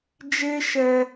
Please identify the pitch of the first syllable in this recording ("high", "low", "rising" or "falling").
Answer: high